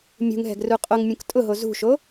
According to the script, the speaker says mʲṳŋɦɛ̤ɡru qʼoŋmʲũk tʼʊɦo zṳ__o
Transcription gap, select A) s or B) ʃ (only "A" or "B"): B